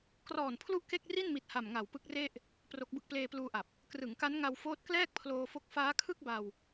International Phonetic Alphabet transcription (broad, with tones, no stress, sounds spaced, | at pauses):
k r ɔː˨˩ n pʰ l u˥˩ ʔ k e˥˩ k̚ r i˥˩ n m i˨˩ t̚ h a˨˩ m ŋ a˨˩ w p ɯ˦˥ k̚ r e˥˩ ʔ | p r o˦˥ k̚ b ɯ˥˩ k̚ p l eː˧ p l uː˧ ʔ a˨˩ p̚ | k r ɯ˩˦ ŋ k a˦˥ n ŋ a˧ w f oː˦˥ t̚ k l ɛː˥˩ k̚ pʰ l oː˧ f o˦˥ k̚ f aː˦˥ kʰ ɯ˥˩ k̚ b a˧ w